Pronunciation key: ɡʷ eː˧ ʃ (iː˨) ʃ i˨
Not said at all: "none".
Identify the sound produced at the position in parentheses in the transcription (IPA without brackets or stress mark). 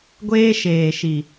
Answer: eː˨